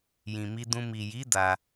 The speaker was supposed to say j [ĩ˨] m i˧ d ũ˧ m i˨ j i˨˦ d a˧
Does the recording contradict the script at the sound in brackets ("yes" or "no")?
no